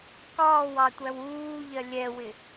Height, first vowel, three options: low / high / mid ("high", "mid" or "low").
low